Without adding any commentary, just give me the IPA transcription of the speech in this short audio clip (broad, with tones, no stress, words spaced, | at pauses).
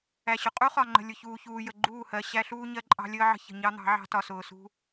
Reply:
æ˨ɕʊ˨ qʼu˦χɒ˨ ŋ͡ǃə̤˨ lʲʊ˨çuː˨çuː˨jə˨ ɡ͡ǃuː˦˨hɜ˨ ɕæ˦ɬuː˦ ɲɜ˦ǃʼɑ̤˦lʲəː˦ʕə̤˦ çə̤˨ ɲɑ˦ n̪ɑ̤˨˦ʕɑ̤˦ tɒ˨sʊː˨ sṳ˦